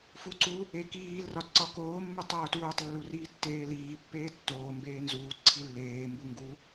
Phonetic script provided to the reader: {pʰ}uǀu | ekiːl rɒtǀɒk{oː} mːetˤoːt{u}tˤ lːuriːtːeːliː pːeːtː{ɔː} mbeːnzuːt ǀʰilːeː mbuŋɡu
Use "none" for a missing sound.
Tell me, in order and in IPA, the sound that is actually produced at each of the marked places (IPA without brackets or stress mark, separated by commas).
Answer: f, oː, uː, oː